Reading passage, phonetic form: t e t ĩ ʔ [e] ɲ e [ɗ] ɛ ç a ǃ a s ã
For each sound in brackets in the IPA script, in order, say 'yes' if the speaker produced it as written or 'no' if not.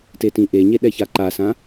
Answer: yes, yes

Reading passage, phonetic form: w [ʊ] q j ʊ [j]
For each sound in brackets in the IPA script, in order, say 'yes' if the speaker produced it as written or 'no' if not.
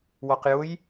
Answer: no, yes

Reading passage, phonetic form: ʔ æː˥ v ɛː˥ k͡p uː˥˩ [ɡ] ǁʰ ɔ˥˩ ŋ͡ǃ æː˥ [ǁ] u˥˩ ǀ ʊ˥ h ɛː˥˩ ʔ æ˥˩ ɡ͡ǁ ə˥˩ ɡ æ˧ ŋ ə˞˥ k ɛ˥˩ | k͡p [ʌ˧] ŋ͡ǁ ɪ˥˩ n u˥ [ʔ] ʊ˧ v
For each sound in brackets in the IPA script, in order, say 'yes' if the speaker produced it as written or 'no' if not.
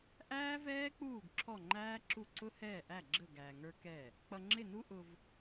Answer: yes, yes, yes, yes

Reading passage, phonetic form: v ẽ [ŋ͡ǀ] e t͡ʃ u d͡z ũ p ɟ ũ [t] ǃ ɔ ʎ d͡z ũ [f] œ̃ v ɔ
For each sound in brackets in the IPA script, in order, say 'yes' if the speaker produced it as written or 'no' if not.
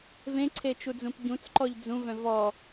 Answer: no, no, no

